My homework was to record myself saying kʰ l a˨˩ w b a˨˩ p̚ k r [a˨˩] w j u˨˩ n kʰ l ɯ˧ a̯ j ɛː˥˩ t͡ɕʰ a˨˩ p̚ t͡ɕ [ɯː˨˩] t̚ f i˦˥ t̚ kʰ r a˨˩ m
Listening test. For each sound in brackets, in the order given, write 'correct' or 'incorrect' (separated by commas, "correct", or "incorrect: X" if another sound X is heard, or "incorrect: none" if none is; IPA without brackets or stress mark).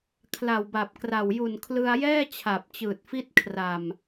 correct, correct